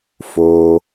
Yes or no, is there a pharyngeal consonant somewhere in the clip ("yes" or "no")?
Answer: no